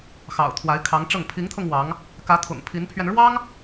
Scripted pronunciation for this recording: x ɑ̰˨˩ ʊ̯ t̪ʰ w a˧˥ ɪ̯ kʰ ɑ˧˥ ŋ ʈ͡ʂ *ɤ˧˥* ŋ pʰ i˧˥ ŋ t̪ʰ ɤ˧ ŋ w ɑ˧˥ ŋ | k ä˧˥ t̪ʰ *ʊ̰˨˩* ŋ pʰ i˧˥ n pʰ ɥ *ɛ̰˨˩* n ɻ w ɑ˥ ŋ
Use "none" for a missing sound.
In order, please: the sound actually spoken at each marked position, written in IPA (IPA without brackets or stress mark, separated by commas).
ɤ˥˩, ʊ̰˨˩, ɛ˧